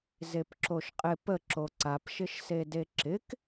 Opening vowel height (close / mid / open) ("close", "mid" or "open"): mid